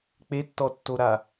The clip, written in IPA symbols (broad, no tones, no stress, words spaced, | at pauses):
k͡petːɔtːoɾa